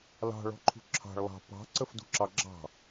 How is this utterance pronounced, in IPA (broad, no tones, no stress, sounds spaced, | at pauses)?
l ɑ̤ ɭ ɔ̤ ǃʰ ṳ ǁʰ ɑ̤ ɭ lˠ ɑ̤ p ɑ̤ ǀ ə f d ṳ ǁ ɑ ɡ͡ǁ ɑ̤